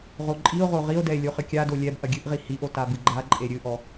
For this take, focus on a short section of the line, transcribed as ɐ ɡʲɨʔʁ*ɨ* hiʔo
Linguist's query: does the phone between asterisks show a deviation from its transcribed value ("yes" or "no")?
yes